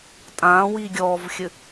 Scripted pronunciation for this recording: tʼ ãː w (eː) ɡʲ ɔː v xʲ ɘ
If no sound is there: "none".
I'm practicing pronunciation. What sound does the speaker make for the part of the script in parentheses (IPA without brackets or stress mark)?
iː